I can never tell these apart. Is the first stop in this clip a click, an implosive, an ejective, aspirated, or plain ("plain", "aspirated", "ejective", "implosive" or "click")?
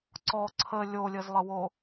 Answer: click